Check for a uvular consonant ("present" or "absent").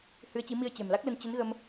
absent